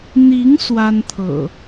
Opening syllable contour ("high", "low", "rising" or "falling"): rising